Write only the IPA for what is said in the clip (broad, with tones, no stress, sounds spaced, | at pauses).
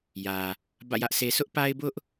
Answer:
j ä˨ | b ä̰˦˨ j ä˦ ʔ s e˦ s ʊ˦ ʔ p a˦ ɪ̯ b ʊ˦ ʔ